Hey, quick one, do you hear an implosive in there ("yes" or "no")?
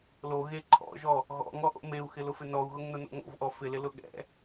yes